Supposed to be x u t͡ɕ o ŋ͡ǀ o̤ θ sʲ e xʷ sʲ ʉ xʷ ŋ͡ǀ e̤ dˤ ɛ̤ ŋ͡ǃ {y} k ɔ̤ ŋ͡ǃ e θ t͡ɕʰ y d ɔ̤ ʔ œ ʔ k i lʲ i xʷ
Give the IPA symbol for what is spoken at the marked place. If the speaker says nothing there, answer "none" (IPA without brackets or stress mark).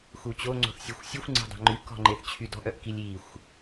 y